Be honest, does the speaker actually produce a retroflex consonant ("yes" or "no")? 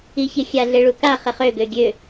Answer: yes